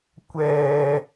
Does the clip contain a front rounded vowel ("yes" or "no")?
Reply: no